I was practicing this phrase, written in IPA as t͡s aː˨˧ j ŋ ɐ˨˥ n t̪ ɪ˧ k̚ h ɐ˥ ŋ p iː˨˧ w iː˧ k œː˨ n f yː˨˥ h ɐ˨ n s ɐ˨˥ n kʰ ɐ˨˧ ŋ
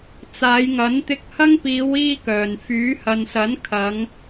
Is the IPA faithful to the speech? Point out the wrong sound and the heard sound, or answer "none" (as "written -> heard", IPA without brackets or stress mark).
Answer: none